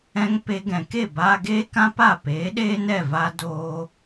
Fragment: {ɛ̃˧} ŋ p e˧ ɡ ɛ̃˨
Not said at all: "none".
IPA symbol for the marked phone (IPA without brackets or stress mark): ɛ̃˧